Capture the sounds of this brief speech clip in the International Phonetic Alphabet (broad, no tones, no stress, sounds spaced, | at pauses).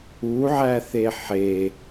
u ʕ æ θ e ħ e